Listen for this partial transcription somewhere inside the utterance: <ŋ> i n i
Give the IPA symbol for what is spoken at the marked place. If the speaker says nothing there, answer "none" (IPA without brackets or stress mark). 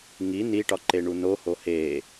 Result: ŋ